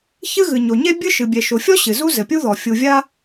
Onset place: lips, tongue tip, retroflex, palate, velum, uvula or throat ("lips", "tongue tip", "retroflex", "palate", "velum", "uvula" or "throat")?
palate